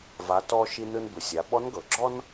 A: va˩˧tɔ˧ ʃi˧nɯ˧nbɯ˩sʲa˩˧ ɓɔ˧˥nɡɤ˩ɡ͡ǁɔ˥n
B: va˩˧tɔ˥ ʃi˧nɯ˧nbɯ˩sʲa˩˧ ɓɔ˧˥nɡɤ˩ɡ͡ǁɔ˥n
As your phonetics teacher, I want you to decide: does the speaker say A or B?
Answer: A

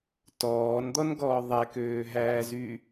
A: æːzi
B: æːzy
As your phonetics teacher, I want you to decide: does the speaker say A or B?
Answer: B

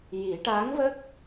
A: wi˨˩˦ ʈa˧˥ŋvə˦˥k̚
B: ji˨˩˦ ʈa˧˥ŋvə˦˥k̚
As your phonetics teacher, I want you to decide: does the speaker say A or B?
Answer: B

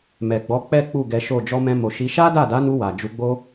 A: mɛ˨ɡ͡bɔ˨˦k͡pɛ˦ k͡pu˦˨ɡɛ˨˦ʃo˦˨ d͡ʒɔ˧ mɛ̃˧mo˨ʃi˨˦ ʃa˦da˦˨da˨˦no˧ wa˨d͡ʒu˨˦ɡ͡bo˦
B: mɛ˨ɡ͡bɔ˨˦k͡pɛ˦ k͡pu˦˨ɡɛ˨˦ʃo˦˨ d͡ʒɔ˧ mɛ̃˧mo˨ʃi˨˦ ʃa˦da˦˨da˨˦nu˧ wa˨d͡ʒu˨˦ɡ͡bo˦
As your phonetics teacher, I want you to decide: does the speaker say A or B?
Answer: B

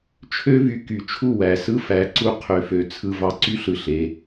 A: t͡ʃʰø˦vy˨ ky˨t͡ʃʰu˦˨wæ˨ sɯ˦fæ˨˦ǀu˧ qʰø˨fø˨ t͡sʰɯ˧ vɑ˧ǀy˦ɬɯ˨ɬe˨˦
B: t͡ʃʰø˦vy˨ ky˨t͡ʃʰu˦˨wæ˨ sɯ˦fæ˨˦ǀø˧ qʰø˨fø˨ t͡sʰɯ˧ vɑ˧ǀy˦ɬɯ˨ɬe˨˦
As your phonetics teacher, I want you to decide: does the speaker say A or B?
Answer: A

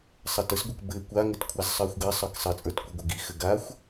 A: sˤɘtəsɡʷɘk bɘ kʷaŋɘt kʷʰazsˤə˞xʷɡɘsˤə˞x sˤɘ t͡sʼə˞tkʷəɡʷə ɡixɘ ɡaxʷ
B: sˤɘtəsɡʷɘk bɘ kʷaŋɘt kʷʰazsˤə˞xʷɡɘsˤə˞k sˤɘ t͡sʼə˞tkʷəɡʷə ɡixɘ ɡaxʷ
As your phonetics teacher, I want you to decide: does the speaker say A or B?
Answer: B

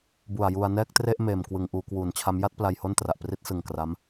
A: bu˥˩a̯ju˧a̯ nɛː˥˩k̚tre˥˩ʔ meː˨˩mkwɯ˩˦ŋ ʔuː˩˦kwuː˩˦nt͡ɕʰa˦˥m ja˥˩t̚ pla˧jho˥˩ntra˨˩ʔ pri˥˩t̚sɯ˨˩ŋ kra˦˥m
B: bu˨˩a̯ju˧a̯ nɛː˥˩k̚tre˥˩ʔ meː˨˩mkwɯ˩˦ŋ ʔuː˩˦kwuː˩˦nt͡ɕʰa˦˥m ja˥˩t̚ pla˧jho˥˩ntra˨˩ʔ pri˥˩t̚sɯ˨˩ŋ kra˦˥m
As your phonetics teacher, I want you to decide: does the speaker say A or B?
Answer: B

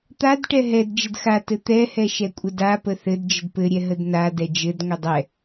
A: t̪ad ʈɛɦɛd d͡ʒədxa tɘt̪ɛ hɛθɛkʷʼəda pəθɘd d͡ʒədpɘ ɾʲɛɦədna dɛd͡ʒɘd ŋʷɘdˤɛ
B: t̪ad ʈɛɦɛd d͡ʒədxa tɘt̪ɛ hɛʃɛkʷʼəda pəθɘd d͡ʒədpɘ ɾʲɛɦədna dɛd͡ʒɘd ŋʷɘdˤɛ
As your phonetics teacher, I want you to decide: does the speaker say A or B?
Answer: B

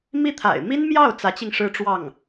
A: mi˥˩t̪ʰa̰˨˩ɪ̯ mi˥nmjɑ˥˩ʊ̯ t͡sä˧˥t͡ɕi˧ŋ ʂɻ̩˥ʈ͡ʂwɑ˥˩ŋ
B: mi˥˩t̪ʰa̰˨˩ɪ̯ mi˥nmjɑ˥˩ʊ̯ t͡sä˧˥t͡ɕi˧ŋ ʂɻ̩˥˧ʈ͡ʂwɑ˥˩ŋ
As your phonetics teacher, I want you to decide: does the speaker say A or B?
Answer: A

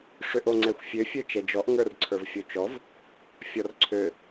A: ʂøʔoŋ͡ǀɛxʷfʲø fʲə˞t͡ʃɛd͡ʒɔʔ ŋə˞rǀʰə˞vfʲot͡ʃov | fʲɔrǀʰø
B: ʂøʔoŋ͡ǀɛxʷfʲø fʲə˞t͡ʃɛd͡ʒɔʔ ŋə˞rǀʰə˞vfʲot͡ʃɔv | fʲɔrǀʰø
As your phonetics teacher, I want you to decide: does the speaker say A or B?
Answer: B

